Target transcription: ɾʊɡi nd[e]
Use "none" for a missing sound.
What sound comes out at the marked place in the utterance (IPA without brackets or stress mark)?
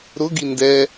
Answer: ɛ